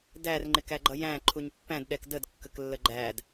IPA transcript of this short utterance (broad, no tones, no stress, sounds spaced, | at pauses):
d æ r ŋ͡ǃ ɪ k æ ɡ͡ǃ ʌ j æ̃ ǃʰ u ɲ pː æ̃ d ɗ ɛ k d ə d kː ə k lː ə ɡ͡ǃ æ d